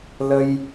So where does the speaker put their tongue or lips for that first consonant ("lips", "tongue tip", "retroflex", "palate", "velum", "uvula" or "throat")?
tongue tip